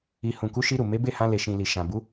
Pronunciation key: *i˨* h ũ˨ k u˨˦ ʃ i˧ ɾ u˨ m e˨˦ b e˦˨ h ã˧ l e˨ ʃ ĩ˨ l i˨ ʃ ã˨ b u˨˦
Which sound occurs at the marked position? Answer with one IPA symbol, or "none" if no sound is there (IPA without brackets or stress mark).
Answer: i˨